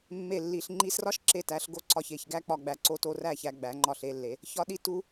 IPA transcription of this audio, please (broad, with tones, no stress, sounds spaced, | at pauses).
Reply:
mː e˧˩ lː i˩˧ ɬ ŋ͡ǃ i˧ s r ɒ˥ ʃ ǁ e˧˩ t æ˩˧ ɬ ɡ o˧ ǀ ɒ˧˩ ç e˧˩ ç ɡ æ˥ k͡p ɒ˧ ɡ͡b æ˧˩ ǀ o˥ t o˥ r æ˥˧ ç æ˧ ɡ͡b æ˩˧ ŋ͡ǃ ɒ˧˩ ɬ e˥˧ lː e˩˧ | ç ɒ˥ ɗ i˥˧ t u˥